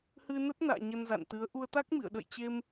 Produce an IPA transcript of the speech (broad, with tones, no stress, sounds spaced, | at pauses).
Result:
h ɨ˧ n ə˦˥ t̚ n a̰ː˧˨ ɲ ə˧ n z a̰˧˨ n t̪ ɨ˨˦ ə̯ ʔ u˧ ə̯ t̪ a˦˥ k̚ m ḭ˧˨ ə̯ ɗ ə̰˧˨ j t͡ɕ e˧ m